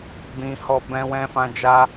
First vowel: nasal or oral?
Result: nasal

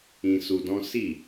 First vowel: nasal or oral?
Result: nasal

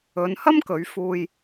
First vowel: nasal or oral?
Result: oral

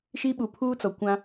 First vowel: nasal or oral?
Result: oral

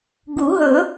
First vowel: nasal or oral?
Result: oral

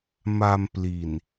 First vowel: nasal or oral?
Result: oral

